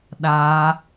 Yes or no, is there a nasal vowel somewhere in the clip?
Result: no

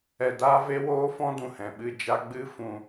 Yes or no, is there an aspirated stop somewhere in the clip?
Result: no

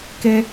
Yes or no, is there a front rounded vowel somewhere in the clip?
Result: no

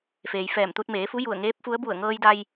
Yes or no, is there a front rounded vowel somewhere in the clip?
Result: no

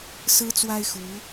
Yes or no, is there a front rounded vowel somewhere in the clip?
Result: no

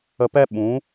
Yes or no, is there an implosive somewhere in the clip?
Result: yes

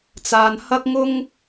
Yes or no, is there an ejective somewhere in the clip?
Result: no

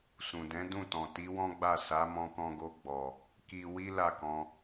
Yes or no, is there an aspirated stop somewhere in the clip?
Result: no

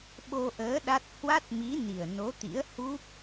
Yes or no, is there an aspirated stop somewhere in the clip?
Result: no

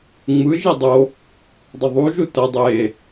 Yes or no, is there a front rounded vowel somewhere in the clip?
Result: no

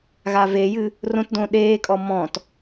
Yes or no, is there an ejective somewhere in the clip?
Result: yes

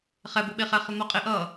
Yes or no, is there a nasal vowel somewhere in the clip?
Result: no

